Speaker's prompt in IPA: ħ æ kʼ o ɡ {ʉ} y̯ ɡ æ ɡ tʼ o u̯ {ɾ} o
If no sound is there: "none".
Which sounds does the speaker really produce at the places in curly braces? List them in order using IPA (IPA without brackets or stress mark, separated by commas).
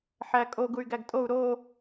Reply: u, ɾ